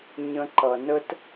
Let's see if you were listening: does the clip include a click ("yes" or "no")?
yes